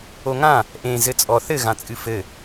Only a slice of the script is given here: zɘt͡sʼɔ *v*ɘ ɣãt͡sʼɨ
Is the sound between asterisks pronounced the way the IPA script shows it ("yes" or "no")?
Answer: no